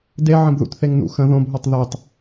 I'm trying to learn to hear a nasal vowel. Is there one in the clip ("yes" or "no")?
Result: yes